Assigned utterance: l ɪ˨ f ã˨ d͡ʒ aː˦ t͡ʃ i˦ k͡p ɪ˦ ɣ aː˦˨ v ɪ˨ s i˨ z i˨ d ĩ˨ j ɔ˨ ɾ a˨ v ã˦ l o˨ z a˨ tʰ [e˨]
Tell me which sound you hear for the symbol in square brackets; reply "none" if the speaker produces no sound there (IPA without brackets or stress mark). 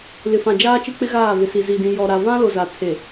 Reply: e˨